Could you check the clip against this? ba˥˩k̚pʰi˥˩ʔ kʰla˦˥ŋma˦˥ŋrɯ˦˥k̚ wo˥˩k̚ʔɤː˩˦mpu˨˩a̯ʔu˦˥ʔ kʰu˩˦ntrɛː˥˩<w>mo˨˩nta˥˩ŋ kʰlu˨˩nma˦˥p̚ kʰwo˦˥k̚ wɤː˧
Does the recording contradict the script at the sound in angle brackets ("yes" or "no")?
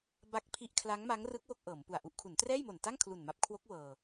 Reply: yes